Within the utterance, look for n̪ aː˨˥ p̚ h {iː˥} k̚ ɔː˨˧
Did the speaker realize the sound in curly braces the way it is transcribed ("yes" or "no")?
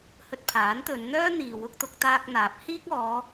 yes